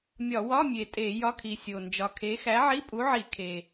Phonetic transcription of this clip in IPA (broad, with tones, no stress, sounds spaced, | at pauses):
mʲ ɒ˧˩˧ w ɒ˧˥˧ mʲ e˨˩ tʼ e˧˩˧ j ɒ˧˥˧ kʰ i˨˩ sʲ o˨˩ n d͡ʒ ɒ˨˩ kʰ e˨˥ x æ˨˥ ʕ i˧˥˧ pʼ u˨˥ ʕ i˧˩˧ kʰ e˨˩